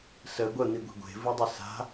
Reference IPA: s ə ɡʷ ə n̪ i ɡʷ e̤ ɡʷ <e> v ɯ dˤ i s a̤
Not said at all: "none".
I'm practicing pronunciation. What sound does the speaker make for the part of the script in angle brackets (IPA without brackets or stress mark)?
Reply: e̤